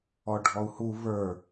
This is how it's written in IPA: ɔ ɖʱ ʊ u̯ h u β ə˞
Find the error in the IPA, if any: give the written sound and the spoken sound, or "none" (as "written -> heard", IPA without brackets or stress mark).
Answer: ʊ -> ɔ